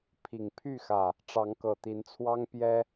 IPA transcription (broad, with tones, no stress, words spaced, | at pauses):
pʰi˨˩ŋpʰy˥˨xä˨˩ | ʈ͡ʂɑ˨˦ŋkɤ˨˩t̪i˨˦nt͡sʰwɑ˦ŋ pjɛ˦